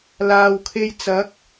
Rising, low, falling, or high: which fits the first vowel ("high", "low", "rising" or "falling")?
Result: low